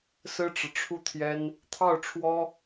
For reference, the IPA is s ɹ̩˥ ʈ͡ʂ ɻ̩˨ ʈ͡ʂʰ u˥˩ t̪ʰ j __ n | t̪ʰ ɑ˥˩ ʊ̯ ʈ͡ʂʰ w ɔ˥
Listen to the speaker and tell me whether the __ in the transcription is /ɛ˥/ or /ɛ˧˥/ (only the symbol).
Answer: ɛ˥